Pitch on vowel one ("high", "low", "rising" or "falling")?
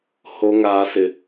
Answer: low